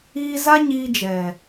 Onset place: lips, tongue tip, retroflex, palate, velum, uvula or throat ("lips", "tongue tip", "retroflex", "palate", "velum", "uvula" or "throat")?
tongue tip